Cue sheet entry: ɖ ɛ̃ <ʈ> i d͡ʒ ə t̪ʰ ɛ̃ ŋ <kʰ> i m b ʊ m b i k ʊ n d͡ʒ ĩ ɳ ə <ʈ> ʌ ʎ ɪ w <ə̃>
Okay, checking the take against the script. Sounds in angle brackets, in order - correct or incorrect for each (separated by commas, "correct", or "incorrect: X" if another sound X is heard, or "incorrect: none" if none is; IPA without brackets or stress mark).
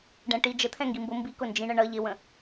correct, incorrect: ɡ, incorrect: ɳ, correct